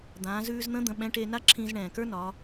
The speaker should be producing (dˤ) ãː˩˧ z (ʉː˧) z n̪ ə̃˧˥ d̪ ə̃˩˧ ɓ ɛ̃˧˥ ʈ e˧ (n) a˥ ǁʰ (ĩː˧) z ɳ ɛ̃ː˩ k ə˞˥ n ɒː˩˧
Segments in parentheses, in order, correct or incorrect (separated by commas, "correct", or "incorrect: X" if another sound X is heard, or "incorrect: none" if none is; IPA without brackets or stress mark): incorrect: d̪, correct, correct, correct